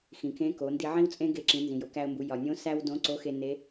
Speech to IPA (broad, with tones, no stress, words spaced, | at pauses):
xĩ˩kẽ˧˥ko˩˧ ndi˧ʕĩ˥wt͡sʼẽ˥ ɡe˧ǁĩ˩˧ nzĩ˩jo˩˧kæ˧ə̯mbu˩˧ jɒ˩nʲõ˧˥ sæ˥w dõ˧˥ ǀo˧˥xe˧ ne˧˥